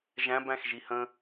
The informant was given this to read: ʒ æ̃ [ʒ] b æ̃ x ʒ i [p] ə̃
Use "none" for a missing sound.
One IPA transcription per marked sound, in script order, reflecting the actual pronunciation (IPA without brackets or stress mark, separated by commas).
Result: none, h